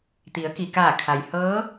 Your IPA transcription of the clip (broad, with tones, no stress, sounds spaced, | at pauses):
t̪ i˩˧ ə̯ k i˩ k aː˧˩ kʰ a˩ j h ɤː˧˥